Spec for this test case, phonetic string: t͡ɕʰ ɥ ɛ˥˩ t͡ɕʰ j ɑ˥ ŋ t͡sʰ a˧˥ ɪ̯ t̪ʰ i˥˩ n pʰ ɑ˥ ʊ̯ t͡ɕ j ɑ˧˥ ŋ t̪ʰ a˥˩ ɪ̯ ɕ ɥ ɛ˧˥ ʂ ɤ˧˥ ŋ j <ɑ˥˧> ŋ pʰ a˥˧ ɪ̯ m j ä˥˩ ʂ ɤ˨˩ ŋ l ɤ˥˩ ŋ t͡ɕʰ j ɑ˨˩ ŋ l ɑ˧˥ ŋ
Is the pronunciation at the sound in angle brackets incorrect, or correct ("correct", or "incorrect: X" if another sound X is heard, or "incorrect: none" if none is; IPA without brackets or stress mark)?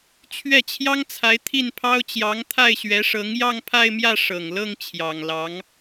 correct